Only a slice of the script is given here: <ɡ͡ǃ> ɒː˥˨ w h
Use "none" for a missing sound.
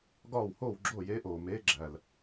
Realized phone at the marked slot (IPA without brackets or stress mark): ɡ